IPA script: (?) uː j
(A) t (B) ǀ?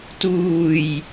A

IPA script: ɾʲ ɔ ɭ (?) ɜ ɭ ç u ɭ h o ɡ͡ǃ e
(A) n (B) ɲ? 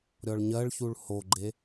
B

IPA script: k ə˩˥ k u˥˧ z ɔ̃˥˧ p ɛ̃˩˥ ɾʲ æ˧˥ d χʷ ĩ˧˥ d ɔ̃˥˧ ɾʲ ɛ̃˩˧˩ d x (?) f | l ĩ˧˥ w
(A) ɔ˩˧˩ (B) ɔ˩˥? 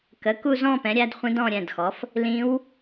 B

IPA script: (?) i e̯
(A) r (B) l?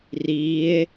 A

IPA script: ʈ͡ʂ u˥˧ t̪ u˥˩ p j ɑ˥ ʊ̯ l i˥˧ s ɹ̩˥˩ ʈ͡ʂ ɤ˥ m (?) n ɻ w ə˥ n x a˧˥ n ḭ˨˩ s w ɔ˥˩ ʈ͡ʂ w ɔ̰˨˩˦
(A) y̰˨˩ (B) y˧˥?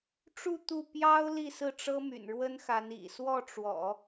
A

